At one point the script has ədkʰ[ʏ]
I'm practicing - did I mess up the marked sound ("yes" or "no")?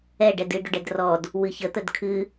yes